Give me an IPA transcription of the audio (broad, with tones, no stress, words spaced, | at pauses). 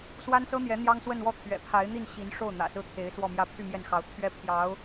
swa˥nsɤ˥n̪jɛ˧˥ n̪jɑ˥ŋswə˥˧nwɔ˥˩ t̪ʰɥɛ̰˨˩pʰa˧˥ɪ̯n̪i˥˩n ɕi˧˥nʂo˥˩ʊ̯n̪ä̰˨˩ sɹ̩˥t̪ʰe˧˥ɪ̯ swɔ˥˧mjä˥˧ pʰy˥˧mjɛ˥˩nxɑ˧˥ʊ̯ t̪ʰɥɛ˥pʰjɑ˧˥ʊ̯